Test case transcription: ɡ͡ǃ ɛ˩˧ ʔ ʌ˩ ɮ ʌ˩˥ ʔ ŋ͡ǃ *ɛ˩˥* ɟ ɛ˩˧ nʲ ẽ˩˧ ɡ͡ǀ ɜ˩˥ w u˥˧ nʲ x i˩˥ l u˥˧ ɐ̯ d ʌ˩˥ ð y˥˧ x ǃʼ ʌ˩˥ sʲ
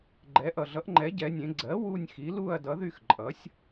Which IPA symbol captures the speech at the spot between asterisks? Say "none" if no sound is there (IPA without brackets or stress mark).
ɛ˩˥